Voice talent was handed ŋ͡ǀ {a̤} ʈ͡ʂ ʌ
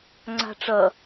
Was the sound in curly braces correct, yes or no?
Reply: yes